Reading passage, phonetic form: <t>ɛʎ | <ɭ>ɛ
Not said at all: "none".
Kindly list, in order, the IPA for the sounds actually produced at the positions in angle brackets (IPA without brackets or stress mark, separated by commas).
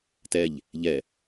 t, ʎ